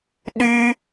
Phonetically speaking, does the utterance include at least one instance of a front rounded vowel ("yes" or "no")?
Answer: yes